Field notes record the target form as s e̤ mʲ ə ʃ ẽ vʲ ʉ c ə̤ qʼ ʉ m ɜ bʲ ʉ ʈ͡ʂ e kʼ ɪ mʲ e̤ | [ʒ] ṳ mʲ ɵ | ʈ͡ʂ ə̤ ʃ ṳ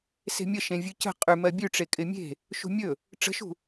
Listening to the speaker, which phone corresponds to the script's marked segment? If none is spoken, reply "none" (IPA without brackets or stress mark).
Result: ʃ